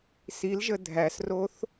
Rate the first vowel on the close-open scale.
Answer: close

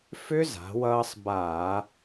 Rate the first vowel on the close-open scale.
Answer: close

